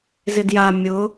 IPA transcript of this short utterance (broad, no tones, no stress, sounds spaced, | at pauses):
z ɪ d j a mʲ ʊ